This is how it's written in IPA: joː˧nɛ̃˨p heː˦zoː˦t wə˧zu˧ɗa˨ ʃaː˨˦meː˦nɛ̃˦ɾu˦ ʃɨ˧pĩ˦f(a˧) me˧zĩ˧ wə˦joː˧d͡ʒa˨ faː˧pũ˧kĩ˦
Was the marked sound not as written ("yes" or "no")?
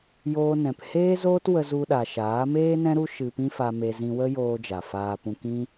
no